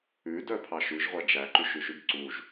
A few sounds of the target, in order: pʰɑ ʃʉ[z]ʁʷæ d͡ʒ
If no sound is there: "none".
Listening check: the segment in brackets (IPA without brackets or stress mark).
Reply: ʒ